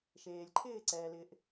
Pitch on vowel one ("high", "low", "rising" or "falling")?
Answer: low